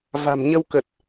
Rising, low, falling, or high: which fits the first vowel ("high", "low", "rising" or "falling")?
low